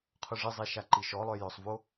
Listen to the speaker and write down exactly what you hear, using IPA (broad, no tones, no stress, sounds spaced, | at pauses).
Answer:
qʰ ʊ ʐ ɪ zˤ e ʃ a ǃ i ʃ ɔ lˠ œ j œ sˤ v o